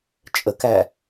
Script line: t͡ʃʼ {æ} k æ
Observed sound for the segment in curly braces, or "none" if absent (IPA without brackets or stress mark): ə